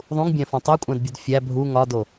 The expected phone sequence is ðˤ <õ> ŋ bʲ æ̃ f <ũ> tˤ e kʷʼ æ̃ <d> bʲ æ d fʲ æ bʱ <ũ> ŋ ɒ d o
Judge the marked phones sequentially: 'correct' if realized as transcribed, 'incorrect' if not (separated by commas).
incorrect, incorrect, correct, incorrect